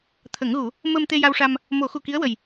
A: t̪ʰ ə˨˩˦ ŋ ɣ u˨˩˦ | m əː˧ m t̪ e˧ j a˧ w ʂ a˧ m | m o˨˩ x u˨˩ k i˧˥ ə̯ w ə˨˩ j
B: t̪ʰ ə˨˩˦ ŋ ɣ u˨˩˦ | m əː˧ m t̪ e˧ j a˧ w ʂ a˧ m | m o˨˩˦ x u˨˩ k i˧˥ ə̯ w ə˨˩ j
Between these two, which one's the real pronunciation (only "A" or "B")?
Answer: B